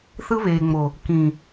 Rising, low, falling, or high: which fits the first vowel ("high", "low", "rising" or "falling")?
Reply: high